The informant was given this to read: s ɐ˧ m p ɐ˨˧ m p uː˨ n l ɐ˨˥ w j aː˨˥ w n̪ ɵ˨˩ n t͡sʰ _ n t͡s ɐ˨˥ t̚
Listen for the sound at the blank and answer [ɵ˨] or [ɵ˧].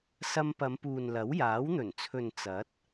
ɵ˨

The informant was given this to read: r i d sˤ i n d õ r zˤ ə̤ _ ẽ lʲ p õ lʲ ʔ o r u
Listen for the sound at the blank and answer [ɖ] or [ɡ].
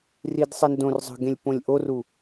ɡ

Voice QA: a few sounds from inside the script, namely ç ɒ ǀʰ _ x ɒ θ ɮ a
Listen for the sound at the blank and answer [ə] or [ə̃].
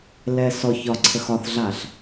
ə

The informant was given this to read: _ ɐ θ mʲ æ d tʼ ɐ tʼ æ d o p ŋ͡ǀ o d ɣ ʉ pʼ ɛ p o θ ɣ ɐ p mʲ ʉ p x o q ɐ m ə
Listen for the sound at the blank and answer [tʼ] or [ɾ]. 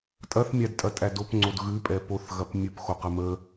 tʼ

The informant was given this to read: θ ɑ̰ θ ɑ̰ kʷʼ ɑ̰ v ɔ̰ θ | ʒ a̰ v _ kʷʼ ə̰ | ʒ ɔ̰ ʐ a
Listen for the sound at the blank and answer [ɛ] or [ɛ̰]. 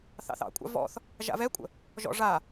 ɛ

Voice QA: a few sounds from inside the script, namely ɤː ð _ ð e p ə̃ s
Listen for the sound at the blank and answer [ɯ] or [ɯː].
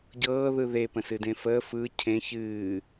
ɯ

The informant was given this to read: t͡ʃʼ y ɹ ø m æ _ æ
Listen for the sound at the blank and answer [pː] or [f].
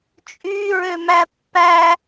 pː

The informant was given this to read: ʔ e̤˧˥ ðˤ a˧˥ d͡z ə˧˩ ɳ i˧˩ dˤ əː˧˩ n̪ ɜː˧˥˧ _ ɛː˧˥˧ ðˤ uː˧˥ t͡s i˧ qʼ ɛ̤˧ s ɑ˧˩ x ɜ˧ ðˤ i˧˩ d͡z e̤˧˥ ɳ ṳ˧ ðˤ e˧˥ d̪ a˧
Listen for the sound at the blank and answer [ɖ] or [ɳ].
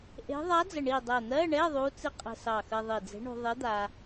ɳ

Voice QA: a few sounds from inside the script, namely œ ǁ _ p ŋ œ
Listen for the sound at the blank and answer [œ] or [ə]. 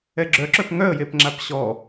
œ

